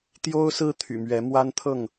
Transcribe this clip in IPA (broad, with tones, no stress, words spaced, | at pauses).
t̪jo˦ʊ̯sɹ̩˦ t̪ʰy̰˨˩mɥɛ˨˦ mwa˦nt̪ʰɤ˥˨ŋ